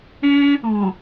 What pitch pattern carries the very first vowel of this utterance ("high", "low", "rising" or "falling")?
high